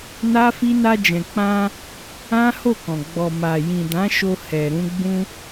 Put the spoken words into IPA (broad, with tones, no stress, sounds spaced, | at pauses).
n a˦ f i˦ n a˧ d͡ʒ ɛ̃˨ k͡p ã˧ | ã˦ h o˦˨ k ɔ̃˨ ɡ͡b ɔ˨ m a˨ j ĩ˨ d ã˨˦ ʃ o˧ h ɛ˨ ɾ ũ˧ ɡ͡b ũ˧